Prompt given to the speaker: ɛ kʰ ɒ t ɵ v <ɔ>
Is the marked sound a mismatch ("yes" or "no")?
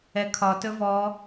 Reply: no